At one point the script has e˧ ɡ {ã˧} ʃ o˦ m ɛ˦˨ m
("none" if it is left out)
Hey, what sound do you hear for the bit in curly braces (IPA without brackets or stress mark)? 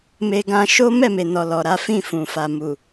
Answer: ã˧